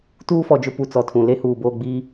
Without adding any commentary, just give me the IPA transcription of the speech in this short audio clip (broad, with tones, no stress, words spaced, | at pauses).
tuː˦fɔ˨d͡ʒʊ˦ pu˨t͡sɔ˨tʰũ˨ le˦ huː˨boː˦˨ɡ͡biː˦